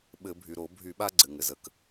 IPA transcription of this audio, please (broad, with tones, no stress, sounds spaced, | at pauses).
ɓ ɘ˧˩˧ bʱ y˩ ɾ o˧˩˧ bʱ y˧˩˧ ɓ a˦ ɡ͡ǀ ɘ˩ ŋ ɘ˩ z ə˩ k